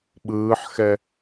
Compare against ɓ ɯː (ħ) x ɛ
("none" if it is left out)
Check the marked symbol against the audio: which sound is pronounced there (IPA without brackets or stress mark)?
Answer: ħ